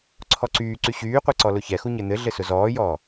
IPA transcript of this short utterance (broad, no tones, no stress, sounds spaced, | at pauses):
ǀʰ ɔ ǀ yː ǀ y ɕ yː qʷ ɛ ǀ ɔ l ʊ ç ɛ x u ɲ ɘ n̪ ɘ ɮ ɘ s ʊ z ɔː j ɔː